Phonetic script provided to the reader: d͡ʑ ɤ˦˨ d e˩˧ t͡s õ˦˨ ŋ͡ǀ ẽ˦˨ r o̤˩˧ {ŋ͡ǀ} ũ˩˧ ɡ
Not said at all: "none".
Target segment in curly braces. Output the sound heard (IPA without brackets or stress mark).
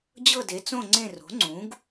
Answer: ŋ͡ǀ